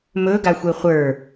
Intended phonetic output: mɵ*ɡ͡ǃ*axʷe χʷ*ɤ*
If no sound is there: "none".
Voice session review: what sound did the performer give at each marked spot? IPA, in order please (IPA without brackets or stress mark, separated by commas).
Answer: ɡ, ə˞